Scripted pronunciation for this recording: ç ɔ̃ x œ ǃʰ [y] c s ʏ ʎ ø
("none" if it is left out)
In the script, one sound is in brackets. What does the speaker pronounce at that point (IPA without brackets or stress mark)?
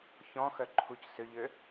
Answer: u